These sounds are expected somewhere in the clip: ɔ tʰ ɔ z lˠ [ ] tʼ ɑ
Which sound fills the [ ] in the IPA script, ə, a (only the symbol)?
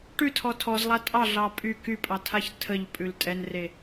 a